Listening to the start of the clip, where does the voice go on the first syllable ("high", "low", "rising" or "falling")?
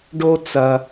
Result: low